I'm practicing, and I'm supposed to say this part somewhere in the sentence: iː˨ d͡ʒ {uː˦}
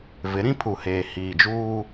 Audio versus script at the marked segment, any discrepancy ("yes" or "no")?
no